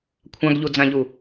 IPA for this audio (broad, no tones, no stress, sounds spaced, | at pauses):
kʷʰ ã ɡ ʎ u d͡z ã ʎ u